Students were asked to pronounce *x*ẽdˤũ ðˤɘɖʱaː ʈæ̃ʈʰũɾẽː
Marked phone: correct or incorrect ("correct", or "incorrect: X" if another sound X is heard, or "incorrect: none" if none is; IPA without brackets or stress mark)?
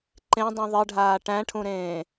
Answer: incorrect: ǃ